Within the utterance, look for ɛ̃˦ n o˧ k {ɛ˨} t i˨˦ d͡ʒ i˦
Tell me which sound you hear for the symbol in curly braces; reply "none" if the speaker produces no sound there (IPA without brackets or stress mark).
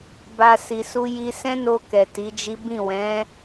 ɛ˨